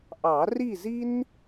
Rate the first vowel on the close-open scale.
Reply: open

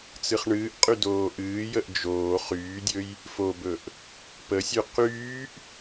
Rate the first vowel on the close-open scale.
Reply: close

